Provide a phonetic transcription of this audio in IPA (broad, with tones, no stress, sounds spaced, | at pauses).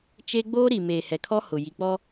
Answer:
t͡ʃ e˦ ɡ͡b oː˦ ɾ i˨ m eː˨ h ɛ˨ kʰ ɔ˦ h ʊ˨ j i˨ k͡p ɔ˦